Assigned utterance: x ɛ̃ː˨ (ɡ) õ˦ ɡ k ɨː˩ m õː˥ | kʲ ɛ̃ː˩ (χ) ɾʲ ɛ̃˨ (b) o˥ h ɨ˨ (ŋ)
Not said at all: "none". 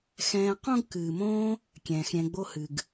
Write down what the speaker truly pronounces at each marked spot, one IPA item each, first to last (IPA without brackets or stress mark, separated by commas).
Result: q, x, ɡ͡b, ɡ